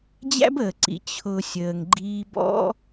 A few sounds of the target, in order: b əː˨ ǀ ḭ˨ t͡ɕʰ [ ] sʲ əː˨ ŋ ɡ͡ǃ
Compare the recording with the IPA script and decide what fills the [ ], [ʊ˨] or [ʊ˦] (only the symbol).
ʊ˨